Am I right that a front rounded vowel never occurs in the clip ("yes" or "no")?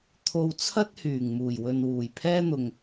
no